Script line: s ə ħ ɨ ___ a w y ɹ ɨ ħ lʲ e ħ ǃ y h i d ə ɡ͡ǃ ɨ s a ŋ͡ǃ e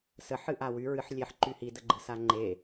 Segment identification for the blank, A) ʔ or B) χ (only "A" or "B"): A